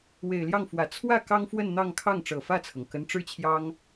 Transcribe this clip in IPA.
w e˨˩ ɪ̯ l j ɑ˥˩ ŋ f w ä˨˩ t͡sʰ w ä˥˩ k ɑ˥ ŋ f w ə˥˧ n n̪ ɑ˥˧ ŋ kʰ ɑ˥˩ ŋ ʈ͡ʂ ɤ˨˩ f ä˥˩ t͡sʰ ɤ˩ ŋ k ə˧˥ n ʈ͡ʂ ɻ̩˥ t͡ɕʰ j ɑ˥ ŋ

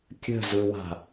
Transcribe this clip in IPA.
kʲ ə̤ z ɯ w a̤

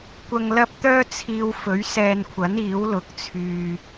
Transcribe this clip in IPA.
kʷ ɐ˧ ŋ l ɐ˥ p̚ t̪ œː˥ t͡sʰ iː˧ w f ɵ˨˥ ɥ s ɛː˧ n kʷʰ ɐ˨˥ n iː˨˥ w l ʊ˨˥ k̚ t͡sʰ yː˧

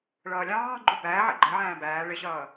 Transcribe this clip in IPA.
ɭ ʌː lʲ ɑ̃ː ɡ͡ǃ u b æː ʕ ɛ̰ ɡ͡ǃ ə ʕ æ̃ː b æː ɭ ɪ ɕ ʌː

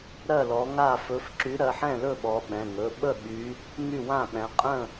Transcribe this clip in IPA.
ɾ ɜ˥˨ l ɔ˨˦ ŋ a˥˨ f ɵ˨˦ f ǁ y˨˦ ɾ ɜ˩˧˩ ħ ɛ̃˥˨ l ɵ˥˨ ɓ ɔ˨˦ ɓ ɛ̃˩˧˩ ŋ ɵ˩˧˩ ɓ ə˥˨ ɠ y˨˦ | ŋ y˥˨ w ã˥˨ ɓ ɛ̃˨˦ qʼ ə̃˥˨

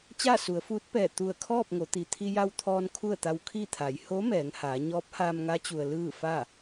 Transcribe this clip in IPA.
t͡ɕ aː˥˨ s u˩˧ ə̯ f uː˧˥ t̚ p ɛː˧˩ t̪ u˧˩ ə̯ kʰ ɔː˥˨ p̚ ŋ o˩˧ t̪ i˩ t̪ʰ i˧ j a˧ w t̪ʰ ɔː˧ n kʰ u˥˨ ə̯ t̪ a˧ w kʰ i˥˨ t̪ʰ a˩˧ j h o˧˥ m ɛː˩˧ ŋ h aː˩˧ ɲ ɔː˧˥ p̚ h aː˧ m ŋ a˧˥ t͡ɕ u˩ ə̯ l ɯː˥˨ f a˥˨

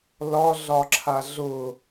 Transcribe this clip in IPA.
l ɒ ɮ ɒ ǁʰ a ɮ ʊ

